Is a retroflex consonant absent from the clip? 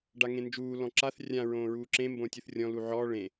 no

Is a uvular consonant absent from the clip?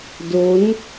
yes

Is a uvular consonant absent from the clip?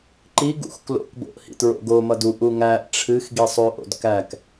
yes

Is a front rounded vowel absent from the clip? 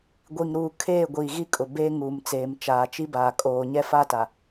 yes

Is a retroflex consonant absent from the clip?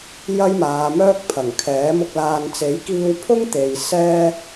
yes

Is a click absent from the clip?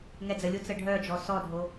yes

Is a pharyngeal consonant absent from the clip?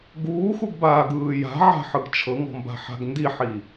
no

